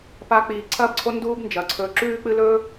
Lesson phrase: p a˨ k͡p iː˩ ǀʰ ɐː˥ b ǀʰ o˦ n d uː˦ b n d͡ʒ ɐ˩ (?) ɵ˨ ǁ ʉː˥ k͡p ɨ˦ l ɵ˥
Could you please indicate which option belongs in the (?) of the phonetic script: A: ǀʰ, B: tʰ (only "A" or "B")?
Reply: A